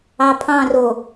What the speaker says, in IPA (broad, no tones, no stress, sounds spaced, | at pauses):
ɑ pʰ ɑ̃ r o